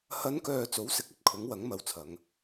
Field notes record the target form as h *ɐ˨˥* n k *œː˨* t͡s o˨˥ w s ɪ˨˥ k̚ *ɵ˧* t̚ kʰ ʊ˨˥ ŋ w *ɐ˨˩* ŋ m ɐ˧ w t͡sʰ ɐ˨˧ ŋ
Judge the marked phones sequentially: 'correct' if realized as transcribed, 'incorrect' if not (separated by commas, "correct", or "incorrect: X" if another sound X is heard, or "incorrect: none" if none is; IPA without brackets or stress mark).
incorrect: ɐ˨˧, correct, incorrect: ɵ˨, incorrect: ɐ˨˥